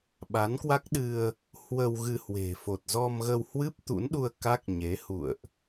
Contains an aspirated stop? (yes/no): no